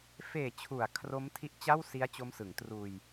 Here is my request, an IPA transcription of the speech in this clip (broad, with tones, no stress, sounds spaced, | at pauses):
f eː˨˩ t͡ɕʰ u˩˦ a̯ kʰ r o˦˥ m tʰ i˦˥ ʔ t͡ɕ a˥˩ w s i˦˥ a̯ t͡ɕ o˦˥ m s ɯ˩˦ ŋ t r uː˧ j